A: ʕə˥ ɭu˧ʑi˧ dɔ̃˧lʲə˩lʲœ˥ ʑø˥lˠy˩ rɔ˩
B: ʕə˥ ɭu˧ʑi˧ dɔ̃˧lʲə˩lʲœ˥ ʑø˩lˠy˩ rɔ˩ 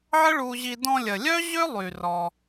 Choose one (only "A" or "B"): A